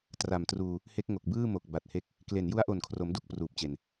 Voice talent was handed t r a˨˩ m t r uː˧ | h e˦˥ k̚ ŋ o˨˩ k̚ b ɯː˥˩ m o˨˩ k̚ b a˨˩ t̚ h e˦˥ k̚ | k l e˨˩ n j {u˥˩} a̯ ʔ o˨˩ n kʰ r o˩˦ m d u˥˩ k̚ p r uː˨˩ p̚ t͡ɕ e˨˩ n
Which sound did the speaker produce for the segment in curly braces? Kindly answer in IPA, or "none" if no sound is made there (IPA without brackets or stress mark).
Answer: u˦˥